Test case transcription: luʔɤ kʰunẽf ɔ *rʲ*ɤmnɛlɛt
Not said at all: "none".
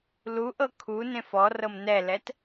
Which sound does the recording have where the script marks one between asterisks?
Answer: r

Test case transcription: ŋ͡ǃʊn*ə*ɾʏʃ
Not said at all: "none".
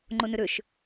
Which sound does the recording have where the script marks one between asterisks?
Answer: ʏ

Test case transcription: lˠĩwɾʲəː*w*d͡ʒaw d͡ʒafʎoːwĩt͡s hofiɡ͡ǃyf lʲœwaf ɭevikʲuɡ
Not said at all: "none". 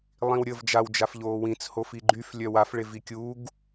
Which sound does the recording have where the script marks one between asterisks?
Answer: v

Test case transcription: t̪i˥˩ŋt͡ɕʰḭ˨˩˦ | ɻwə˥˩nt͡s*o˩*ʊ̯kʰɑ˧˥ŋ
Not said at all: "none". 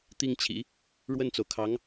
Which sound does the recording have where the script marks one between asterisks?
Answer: o˩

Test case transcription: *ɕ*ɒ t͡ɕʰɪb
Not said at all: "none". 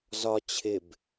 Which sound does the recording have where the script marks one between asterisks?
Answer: z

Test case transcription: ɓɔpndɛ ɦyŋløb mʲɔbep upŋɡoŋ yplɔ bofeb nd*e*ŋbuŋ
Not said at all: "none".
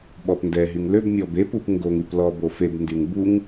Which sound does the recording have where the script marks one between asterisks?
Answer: y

